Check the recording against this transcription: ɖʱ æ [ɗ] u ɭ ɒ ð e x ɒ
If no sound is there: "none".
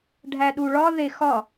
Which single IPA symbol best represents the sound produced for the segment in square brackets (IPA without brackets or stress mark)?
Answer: ɗ